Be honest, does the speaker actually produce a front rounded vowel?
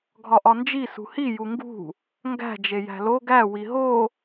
no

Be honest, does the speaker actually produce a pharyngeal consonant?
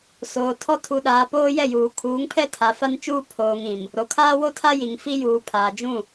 no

